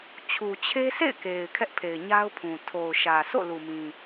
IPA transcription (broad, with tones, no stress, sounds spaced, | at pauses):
t͡ɕʰ u˨ t͡ɕʰ e˦ s ḛ˦˨ ɪ̯ k e˨ ɪ̯ kʰ ɛ˦ ʔ pʰ e˨ ɪ̯ ɲ a˦ ʊ̯ pʰ ũ˨ tʰ o˨ ʊ̯ ʃ ä˨ sʰ o̰˦˨ l u˨ m ĩ˨